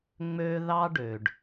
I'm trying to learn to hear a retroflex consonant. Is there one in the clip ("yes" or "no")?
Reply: yes